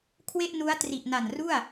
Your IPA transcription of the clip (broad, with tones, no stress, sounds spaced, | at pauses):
kʰ w e˥˩ ʔ n u˦˥ a̯ t r i˨˩ ʔ n a˨˩ n r u˥˩ a̯